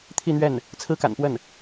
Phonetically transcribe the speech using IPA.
t̪ʰ i˥˧ n̪ ɥ ɛ˥˩ n | t͡sʰ ɹ̩˥ k a̰˨˩ n p w ə˥˩ n

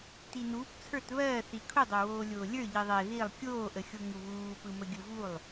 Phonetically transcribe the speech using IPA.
t i n uː p t͡sʰ ə˞ t β ɜː θ i kʰ u dˤ o w oː lʲ oː lʲ ə˞ ʎ i ðˤ ɛ ð i lˠ kʲ oː ʔ ə xʲ o ŋ u β uː p ɯ m ə ɡʲ ɯ v u lˠ

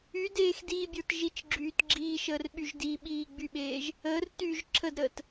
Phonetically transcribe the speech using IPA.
y d eː x d iː bʲ ə˞ t ʒ i t͡ʃ ɡ͡ǁ yː t ɡ͡ǁ iː ʃ əː r ɓ y ʒ d i ɓ iː ɡ͡b y ɓ eː ʒ | əː r t y ʒ ǁʰ ə d ɾ əː t

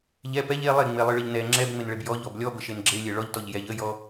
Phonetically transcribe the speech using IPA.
ʎ ɛ p ɛ ʎ e lˠ e ŋ͡m e lˠ ɨ ɭ ə ʎ n ɛ ŋ͡ǁ ɛ b ŋ͡m e n ɭ e b j ɔ ʎ ɔ b lʲ ɔ b ə ʃ e n ɡ͡ǁ e lʲ e ɭ ɔ ʎ t ɔ ʎ j ɛ ʎ ə j ɔ

